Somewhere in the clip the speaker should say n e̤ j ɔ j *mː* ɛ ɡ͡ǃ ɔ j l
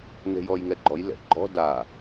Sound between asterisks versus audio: incorrect: ŋ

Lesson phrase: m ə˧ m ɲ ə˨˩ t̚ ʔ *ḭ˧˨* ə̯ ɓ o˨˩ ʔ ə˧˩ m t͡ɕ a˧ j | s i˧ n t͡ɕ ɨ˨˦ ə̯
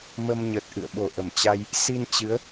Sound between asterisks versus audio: incorrect: ɨ̰˧˨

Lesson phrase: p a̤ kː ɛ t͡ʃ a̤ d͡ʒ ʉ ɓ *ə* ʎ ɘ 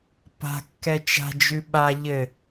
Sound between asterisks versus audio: incorrect: a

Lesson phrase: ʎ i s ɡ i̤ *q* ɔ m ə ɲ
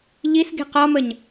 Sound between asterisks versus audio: correct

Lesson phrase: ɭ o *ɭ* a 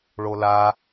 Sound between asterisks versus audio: incorrect: l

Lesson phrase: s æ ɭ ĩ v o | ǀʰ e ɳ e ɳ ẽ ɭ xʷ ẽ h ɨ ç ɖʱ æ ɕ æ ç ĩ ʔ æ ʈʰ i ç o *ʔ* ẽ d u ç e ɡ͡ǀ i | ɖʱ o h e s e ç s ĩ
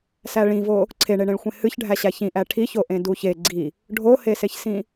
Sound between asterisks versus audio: correct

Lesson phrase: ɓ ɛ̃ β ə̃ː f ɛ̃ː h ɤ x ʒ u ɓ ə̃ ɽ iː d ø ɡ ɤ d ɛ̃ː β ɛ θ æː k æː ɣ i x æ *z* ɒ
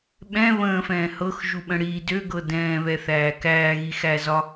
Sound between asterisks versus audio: correct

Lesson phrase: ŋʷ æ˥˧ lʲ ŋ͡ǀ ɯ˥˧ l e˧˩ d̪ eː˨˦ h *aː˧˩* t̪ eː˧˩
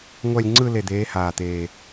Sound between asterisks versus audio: correct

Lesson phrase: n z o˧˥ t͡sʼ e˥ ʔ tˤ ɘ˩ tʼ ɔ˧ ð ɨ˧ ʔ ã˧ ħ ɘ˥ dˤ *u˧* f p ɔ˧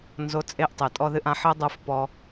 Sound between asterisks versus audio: correct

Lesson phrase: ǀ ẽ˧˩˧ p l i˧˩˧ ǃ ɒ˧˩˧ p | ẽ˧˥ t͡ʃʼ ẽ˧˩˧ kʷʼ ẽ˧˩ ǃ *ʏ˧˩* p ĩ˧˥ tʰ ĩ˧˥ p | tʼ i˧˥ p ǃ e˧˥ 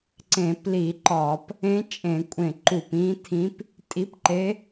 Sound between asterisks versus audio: incorrect: u˧˩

